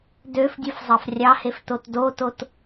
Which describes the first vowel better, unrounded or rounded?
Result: rounded